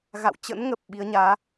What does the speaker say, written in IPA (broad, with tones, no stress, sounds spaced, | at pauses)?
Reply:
ɣ a̰˧˨ w t͡ɕ ə̰˧˥ n ŋ ə˨˩ p̚ ɓ i˨˦ ə̯ ɲ aː˨˦